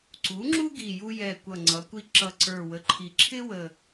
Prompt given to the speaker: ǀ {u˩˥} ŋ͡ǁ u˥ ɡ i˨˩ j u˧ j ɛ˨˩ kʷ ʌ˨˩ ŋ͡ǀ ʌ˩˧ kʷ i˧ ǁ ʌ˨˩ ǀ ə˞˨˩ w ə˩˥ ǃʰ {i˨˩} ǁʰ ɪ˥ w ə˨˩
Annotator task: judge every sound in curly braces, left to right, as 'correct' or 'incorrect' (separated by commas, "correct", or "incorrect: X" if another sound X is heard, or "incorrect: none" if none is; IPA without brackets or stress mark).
correct, correct